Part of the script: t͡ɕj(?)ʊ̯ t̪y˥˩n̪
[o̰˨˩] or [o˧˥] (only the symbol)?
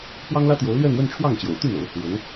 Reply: o̰˨˩